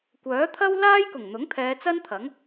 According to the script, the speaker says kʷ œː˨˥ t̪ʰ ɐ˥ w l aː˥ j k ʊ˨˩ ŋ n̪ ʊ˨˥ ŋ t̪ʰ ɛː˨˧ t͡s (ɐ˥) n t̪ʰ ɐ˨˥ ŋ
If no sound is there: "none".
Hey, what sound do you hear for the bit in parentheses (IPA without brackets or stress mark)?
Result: ɐ˥